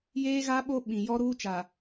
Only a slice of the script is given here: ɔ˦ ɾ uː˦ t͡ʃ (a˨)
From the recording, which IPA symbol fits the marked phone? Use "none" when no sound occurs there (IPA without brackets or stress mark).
a˨